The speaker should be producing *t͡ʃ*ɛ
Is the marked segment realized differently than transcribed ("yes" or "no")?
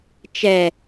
no